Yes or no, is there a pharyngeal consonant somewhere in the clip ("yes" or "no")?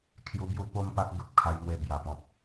no